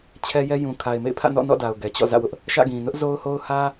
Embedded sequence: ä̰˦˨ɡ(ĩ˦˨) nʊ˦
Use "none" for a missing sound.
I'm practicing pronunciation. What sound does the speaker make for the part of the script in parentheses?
ĩ˨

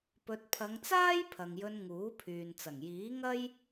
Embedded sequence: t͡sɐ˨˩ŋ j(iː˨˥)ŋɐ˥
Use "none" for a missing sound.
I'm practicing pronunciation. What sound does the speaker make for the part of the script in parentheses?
iː˨˥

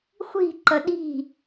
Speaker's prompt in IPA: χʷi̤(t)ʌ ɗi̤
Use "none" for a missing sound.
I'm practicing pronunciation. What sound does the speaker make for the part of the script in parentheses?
ǃ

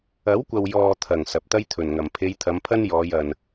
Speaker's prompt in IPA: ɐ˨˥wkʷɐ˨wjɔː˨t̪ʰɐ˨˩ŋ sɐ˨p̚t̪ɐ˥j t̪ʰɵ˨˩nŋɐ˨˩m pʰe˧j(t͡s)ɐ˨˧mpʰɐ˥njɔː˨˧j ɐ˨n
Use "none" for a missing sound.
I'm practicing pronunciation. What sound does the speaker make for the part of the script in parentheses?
t̪ʰ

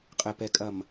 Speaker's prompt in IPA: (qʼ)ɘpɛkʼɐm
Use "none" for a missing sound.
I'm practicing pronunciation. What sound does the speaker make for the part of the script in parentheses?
qʼ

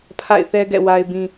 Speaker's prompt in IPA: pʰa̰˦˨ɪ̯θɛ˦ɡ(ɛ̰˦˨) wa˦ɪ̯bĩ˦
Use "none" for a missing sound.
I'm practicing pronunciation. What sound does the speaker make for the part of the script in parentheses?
ɛ̰˦˨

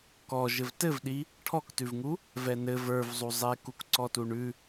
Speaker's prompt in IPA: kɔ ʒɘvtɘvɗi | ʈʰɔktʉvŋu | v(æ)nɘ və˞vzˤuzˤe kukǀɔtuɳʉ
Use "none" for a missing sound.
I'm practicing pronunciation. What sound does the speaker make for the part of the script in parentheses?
ɛ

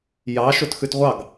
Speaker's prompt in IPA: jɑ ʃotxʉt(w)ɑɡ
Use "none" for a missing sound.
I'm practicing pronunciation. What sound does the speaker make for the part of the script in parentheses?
ʁʷ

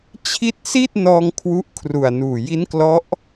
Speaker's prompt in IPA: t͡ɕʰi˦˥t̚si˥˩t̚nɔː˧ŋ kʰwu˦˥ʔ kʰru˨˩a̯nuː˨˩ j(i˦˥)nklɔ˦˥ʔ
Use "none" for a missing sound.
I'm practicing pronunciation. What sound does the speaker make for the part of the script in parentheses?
i˦˥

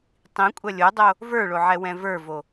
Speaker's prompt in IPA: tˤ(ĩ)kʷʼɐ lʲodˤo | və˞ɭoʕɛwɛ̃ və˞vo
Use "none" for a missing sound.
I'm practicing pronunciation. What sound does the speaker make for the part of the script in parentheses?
ĩ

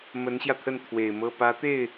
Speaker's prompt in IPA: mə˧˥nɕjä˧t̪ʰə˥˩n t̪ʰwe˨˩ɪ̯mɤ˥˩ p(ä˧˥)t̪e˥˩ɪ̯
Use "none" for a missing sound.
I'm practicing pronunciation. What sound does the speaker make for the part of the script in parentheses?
ä˧˥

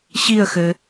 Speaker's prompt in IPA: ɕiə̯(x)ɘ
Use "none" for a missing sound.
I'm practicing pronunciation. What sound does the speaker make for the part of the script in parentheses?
x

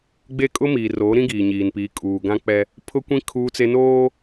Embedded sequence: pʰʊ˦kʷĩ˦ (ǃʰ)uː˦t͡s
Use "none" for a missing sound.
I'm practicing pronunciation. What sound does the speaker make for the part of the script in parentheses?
kʰ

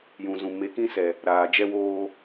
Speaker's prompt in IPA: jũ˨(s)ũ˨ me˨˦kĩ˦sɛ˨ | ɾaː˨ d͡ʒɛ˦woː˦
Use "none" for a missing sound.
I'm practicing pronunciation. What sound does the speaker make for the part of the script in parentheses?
z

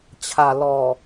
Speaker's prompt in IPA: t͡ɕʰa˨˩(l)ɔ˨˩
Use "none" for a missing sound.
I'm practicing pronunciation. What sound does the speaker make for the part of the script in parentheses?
l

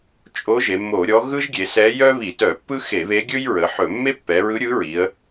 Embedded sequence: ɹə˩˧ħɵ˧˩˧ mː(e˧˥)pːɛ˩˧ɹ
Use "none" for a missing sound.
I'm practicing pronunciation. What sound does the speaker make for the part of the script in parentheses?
e˥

